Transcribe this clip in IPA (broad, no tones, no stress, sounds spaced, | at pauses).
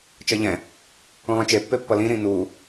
t͡ʃ ʌ ʎ ɛ̃ | ũ lˠ ĩ t͡ʃ e pː e pː ʌ l ĩ ɾ ĩ n uː